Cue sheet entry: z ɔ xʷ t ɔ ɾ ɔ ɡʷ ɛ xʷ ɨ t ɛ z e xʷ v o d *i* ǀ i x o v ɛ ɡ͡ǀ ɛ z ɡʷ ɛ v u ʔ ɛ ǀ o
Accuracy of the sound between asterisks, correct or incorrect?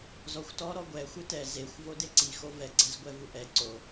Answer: incorrect